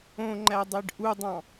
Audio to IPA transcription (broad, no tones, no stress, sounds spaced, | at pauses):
õ ŋ͡ǃ æ dˤ e ɖ ʔ u dˤ ɑ̃